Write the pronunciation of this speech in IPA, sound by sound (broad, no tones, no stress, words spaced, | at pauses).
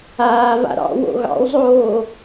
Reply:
aːva̰ ɾɑ̰ wo̰ɣɑ̰wzˤoː